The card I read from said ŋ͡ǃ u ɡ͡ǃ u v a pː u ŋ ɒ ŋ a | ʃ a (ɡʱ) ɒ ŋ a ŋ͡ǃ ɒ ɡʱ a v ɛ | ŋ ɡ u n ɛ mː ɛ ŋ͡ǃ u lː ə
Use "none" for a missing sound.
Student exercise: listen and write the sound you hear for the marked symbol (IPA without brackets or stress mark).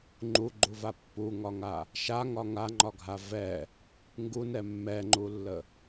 ŋ